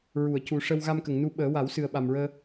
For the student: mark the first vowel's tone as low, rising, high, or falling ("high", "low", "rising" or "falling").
low